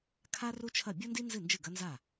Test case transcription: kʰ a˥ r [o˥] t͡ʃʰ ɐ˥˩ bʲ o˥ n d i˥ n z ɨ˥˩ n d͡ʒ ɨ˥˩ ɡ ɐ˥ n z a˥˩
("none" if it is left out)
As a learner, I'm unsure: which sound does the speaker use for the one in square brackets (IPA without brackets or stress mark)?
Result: u˥